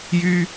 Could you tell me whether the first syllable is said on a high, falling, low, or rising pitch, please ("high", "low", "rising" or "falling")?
high